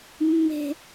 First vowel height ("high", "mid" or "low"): mid